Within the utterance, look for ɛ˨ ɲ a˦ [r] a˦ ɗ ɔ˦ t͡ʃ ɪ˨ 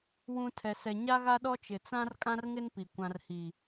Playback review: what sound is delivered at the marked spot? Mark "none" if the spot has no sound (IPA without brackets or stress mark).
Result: ɣ